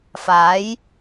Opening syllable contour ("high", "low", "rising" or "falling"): rising